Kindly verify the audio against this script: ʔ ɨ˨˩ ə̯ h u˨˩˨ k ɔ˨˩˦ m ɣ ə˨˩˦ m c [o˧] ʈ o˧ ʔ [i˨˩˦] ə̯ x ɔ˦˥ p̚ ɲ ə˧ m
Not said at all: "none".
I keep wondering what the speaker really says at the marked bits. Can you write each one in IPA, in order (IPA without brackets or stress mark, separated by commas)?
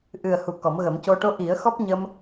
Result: o˧, i˨˩˦